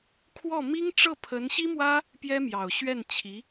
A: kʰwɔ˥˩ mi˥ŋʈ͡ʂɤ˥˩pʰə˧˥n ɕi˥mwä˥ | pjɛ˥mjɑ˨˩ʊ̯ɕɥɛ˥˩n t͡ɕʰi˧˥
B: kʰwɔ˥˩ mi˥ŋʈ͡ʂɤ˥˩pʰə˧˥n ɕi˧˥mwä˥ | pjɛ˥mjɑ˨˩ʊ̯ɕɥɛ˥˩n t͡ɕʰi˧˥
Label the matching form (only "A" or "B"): A